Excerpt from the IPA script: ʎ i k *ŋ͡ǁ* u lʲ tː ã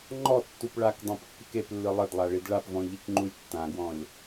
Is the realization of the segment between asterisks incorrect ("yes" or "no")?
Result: yes